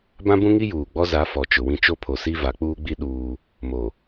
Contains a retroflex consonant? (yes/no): no